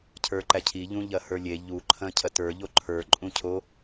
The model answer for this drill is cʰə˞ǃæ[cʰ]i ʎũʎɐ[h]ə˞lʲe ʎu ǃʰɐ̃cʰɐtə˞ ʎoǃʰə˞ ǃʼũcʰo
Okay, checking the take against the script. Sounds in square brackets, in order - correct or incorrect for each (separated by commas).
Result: correct, correct